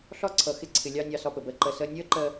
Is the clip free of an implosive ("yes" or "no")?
yes